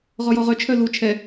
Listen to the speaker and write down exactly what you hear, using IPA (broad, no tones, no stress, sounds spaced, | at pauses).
ʁ ɔ j ɔ ʁ œ t͡ʃʰ œ l u t͡ʃʰ ɛ